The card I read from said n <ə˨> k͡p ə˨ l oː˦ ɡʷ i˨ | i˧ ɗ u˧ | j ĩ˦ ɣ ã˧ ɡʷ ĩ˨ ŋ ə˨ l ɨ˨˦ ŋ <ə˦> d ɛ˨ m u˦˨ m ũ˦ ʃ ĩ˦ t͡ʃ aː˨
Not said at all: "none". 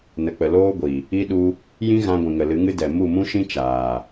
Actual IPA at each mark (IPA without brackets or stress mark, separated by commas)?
ə˨, ɨ˦